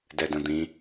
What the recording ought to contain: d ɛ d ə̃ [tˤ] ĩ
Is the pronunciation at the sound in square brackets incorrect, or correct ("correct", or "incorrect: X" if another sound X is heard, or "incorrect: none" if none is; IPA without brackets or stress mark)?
incorrect: d̪